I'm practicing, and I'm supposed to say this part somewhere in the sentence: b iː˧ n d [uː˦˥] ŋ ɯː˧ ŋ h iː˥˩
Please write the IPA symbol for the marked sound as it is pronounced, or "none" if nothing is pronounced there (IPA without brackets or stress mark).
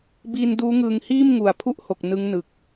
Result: uː˦˥